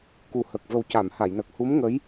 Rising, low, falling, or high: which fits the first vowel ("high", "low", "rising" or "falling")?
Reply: low